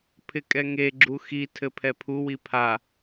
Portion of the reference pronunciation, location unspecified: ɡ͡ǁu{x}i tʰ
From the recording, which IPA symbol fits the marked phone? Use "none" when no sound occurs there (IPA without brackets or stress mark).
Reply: x